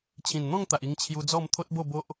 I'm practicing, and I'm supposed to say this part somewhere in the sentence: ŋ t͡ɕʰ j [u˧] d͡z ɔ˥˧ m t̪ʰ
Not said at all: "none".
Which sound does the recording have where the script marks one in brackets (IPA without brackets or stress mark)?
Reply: u˧